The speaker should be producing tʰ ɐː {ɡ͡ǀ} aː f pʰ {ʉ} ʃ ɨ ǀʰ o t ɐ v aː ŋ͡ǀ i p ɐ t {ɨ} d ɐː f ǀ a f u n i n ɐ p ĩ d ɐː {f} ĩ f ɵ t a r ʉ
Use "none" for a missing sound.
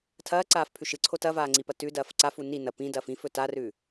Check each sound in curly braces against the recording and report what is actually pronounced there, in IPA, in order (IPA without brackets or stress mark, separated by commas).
ǀ, ʉ, ʉ, f